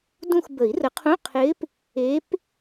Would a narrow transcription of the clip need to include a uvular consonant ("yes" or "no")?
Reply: yes